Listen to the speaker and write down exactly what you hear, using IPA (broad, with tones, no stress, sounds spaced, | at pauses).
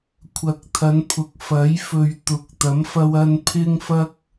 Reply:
kʷʰ ɐ˨˥ k̚ t̪ʰ ɐ˨˧ n pʰ ʊ˨ k̚ f ɐ˨˥ j f ɵ˨ ɥ t̪ ʊ˨˥ k̚ t̪ ɐ˨˥ m f ɐ˧ w ɐ˧ n pʰ ɪ˥ ŋ f ɐ˥ k̚